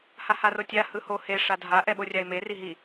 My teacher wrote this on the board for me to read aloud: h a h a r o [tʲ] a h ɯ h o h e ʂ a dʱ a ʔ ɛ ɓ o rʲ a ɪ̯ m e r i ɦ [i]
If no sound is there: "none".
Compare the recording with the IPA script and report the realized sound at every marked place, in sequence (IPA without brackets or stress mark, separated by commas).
tʲ, i